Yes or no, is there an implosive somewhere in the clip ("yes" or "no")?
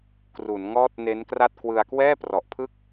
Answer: no